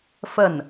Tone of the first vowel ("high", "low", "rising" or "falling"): falling